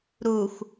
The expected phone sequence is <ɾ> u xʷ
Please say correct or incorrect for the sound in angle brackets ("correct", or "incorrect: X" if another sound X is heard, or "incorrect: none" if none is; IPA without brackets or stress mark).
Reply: correct